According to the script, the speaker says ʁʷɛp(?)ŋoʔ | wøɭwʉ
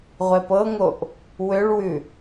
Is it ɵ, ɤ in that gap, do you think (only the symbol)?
ɤ